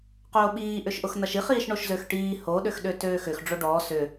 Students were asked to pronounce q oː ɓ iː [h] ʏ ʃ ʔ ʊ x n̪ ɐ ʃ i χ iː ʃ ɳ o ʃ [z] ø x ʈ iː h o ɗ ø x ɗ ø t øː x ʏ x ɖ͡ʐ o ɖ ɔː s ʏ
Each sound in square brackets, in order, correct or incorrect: incorrect: ʔ, correct

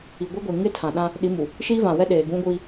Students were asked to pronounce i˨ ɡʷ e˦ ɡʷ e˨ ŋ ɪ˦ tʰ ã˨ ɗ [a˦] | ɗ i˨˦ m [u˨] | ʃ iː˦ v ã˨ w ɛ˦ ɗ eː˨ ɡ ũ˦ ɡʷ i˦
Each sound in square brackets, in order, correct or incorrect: incorrect: ã˦, correct

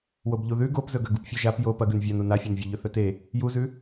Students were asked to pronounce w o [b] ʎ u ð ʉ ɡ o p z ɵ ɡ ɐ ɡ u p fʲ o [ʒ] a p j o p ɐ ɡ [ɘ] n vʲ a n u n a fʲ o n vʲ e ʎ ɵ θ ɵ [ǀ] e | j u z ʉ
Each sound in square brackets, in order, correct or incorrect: correct, correct, incorrect: ʉ, incorrect: t

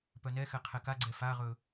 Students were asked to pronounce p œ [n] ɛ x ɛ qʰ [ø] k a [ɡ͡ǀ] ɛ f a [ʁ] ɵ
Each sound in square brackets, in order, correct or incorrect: correct, incorrect: ɛ, correct, correct

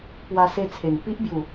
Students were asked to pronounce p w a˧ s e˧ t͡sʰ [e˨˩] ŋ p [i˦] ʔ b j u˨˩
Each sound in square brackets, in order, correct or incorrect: correct, correct

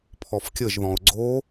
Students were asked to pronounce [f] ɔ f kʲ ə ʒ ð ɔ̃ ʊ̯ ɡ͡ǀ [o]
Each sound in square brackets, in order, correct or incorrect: incorrect: pʰ, correct

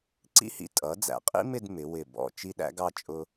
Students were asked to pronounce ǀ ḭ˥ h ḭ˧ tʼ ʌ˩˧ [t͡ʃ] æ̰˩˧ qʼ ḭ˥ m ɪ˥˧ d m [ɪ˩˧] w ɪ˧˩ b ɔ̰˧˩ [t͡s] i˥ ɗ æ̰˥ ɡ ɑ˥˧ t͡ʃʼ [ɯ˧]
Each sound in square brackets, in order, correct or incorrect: incorrect: d͡z, correct, incorrect: t͡ʃ, incorrect: ʊ˧

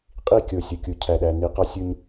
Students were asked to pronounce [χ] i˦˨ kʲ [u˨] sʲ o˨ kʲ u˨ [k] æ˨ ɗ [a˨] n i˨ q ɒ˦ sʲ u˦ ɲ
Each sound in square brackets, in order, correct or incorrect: incorrect: qʼ, incorrect: o˨, incorrect: cʰ, incorrect: æ˨

